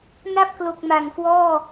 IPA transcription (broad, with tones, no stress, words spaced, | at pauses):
na˥˩p̚klo˨˩k̚ ma˨˩ŋkwɔː˥˩